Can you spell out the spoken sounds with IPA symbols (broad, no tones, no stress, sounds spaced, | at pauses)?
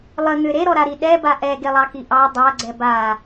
lˠ ə ŋ ʏ ɾ e ɾ ɔ ɾ a ɾ i ɗ ɛ b a ʔ ɛ ɡ e lˠ ɑ k i ʔ ɑ dˤ a ɡ͡ǀ ɛ b a